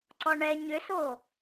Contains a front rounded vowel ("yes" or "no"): yes